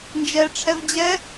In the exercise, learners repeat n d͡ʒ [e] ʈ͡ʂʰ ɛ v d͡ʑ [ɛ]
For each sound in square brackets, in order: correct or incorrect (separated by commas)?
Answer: incorrect, correct